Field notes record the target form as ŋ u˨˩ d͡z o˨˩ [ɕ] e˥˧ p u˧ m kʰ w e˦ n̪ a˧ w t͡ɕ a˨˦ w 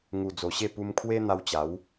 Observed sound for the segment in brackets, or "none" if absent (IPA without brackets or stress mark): ɕ